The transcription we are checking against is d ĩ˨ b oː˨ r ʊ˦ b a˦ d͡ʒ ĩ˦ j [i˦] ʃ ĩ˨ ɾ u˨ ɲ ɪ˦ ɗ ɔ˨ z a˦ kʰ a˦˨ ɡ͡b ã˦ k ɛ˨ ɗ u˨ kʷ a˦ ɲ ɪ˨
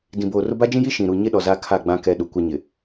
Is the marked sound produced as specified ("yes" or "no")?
yes